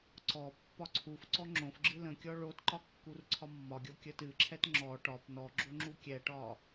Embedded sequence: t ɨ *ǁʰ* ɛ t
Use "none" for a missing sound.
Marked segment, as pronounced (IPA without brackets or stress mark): ǁʰ